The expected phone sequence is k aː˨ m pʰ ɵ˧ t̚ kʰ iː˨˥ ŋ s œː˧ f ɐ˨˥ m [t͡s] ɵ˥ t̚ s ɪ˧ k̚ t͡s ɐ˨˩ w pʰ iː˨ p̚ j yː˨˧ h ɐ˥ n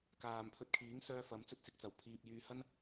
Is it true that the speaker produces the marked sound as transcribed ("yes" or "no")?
yes